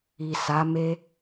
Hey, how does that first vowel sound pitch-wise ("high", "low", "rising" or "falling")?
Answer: low